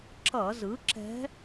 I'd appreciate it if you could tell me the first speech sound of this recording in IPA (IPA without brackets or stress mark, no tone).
ǁ